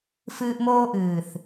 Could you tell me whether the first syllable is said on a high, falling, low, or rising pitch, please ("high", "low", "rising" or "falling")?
high